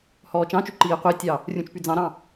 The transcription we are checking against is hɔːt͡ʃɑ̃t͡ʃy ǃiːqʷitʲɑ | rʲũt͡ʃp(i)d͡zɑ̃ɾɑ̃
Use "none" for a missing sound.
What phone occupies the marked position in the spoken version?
y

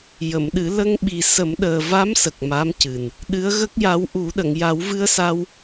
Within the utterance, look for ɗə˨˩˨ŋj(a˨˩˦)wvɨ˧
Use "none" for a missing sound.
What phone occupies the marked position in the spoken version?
a˨˩˦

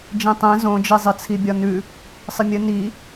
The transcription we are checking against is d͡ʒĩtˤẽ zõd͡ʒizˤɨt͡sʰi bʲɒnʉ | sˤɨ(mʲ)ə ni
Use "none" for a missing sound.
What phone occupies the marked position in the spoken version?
mʲ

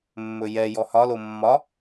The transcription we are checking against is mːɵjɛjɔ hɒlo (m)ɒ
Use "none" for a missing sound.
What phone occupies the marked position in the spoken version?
mː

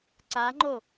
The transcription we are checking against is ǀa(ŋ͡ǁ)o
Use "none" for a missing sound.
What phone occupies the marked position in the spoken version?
ŋ͡ǃ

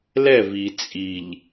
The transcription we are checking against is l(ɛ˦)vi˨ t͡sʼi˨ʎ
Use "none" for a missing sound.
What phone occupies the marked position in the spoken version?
ɛ˦˨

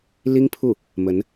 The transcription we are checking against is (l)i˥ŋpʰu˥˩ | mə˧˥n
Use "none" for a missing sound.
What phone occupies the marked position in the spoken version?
l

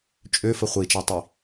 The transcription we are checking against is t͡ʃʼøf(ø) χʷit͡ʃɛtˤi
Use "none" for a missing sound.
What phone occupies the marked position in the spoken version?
ə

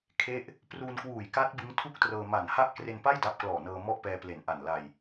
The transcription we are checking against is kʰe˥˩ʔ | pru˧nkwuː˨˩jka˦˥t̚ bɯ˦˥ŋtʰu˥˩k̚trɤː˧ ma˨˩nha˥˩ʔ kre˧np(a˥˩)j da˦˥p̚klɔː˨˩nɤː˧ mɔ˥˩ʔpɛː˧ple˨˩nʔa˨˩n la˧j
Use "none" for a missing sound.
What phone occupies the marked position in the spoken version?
a˥˩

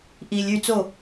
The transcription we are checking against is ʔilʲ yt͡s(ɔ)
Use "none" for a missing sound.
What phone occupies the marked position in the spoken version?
o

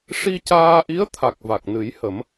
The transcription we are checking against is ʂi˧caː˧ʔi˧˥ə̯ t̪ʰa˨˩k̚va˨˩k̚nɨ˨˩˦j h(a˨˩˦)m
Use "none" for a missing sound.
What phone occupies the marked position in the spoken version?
ə˨˩˦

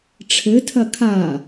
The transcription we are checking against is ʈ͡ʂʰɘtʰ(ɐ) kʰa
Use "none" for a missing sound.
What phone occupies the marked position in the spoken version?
ɐ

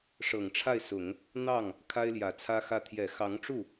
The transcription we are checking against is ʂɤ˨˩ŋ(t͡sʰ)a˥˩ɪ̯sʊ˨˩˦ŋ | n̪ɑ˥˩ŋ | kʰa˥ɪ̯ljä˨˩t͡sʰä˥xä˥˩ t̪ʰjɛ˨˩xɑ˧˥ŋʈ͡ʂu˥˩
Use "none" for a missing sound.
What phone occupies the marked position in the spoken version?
ʈ͡ʂʰ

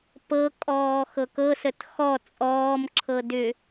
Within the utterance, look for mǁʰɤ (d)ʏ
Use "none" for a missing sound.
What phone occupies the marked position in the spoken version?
d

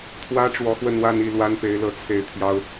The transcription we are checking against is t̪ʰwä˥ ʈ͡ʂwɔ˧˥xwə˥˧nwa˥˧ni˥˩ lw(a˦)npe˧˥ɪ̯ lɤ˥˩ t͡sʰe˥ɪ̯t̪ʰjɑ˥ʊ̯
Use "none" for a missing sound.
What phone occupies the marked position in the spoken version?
a˥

